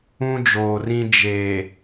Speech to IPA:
ũ˦ d͡ʒ oː˨ r ĩ˦ d͡ʒ e˨

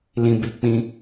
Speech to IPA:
l ĩ˨ b i˨˦ k͡p ĩ˧

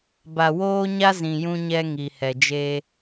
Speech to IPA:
b a˨ w oː˦ ɲ a˦ z ĩ˨ j ũ˦ ɲ ɛ˦ ŋ i˨ h ɛ˨ d͡ʒ e˦

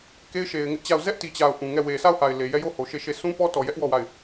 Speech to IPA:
k e˦ ɪ̯ ʃ e˨ ɪ̯ ŋ ɪ˦ ʔ t͡ɕ a˦˨ ʊ̯ z ɛ˦ ʔ t i˨ t͡ɕ a˨ ʊ̯ ʔ ũ˨ ŋ ɛ˦˨ w e˨ sʰ a˦˨ ʊ̯ h a˨ ɪ̯ l e˨ j ɛ˦ j o˦˨ h o˨ ʃ e˦˨ ʃ e˦˨ sʰ ũ˦ p ɔ˦ t ɔ˨ j ɛ˦ ʔ w ɔ˦˨ w a˦˨ ɪ̯

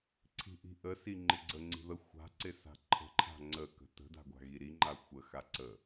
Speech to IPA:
ǀʰ i̤ ʔ i̤ ʔ ə s i ŋ͡ǃ ɪ ɡ͡ǀ ə ŋ͡ǀ i̤ ð ə xʷ a̤ ǀ ɪ s a̤ ǃʰ ə̤ ǃʰ a̤ ŋ͡ǀ ə k ə̤ t ə̤ d a̤ ɡʷ a̤ ɣ i ɾ i ŋ͡ǃ a xʷ ə x a ǀ ə

